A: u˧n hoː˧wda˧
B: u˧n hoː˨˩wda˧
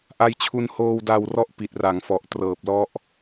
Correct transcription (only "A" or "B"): A